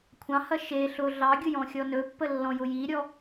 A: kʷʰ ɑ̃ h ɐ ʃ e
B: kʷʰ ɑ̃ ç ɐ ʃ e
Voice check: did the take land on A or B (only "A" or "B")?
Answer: A